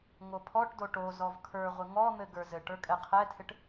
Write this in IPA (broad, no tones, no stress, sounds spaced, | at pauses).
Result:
ŋ o pʰ ɔ ʈ d o ʈ o z ɔ v kʰ ə˞ ʁʷ ɪ ŋ ɔ n̪ ɘ ɡ ə˞ z ɘ ʈ ə˞ kʼ ɛ qʰ ɛ tʰ ɪ ʈ